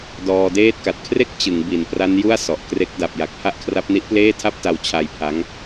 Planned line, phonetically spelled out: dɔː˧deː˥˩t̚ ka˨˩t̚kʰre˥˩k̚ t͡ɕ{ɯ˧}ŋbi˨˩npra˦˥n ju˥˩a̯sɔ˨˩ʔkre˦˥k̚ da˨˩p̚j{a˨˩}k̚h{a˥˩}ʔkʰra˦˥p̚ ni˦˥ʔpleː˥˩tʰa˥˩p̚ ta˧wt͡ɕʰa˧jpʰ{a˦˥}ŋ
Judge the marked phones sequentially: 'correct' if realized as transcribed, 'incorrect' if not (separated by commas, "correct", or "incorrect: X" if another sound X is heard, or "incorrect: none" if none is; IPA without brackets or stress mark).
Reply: incorrect: ɯ˩˦, correct, correct, correct